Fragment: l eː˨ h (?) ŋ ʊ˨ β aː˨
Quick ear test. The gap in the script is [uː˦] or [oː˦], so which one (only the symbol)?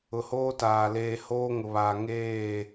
oː˦